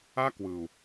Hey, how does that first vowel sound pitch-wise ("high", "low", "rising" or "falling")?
high